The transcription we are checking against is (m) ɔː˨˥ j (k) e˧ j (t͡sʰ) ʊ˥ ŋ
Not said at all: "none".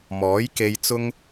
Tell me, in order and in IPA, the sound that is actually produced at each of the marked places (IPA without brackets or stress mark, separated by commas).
m, k, t͡s